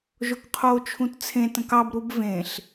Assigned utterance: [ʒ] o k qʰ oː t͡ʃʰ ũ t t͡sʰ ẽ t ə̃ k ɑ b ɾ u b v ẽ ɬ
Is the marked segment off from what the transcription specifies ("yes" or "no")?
no